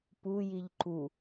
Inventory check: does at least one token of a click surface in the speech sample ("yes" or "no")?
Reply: yes